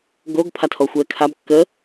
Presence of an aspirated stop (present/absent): present